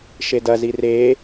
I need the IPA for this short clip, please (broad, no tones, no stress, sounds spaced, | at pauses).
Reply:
ʃ e d ɐ z i r e